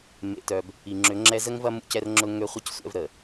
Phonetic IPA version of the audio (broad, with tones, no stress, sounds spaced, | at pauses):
m ḛ˨ t œ˨ b | i˨ ŋ͡ǁ ʏ˨˦ ŋ͡ǁ ɛ˦ z ə˦ ŋ v ɐ˦ m ṵ˦ c ɛ˦ r ŋ͡ǁ ʊ˦ ŋ ø˦ χʷ i˦ c sʷ ɛ̰˦ v ɾ ə˨